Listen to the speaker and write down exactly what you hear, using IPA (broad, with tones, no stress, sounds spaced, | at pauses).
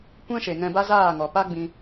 kʷ ɛ̃˦ ʃ e˨ ŋ ɛ̃˧ b a˦ z aː˦˨ ŋ ɔ˨ p a˦ ɡ͡b ĩ˧